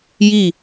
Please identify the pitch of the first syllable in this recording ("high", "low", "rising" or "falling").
falling